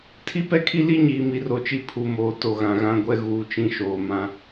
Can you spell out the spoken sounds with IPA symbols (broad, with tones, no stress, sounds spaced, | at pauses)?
tʰ i˦ p ɛ˦ kʰ i˦ l i˦ ɲ iː˨ m i˨ r o˨ t͡ʃ i˦ pʰ u˨ m oː˨ t o˨ ɣ ã˨ ɣ ã˦ ɡʷ ɛ˦ ɣ uː˨ t͡ʃ ĩ˦ ʃ oː˨ m ã˦